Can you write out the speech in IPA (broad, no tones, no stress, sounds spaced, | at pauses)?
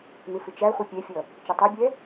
n̪ ɪ f ɪ t͡ʃ æ χʷ ə pʲ ɛ fʲ ʌ | t͡ʃ ʌ tˤ ɛ bʲ ɛ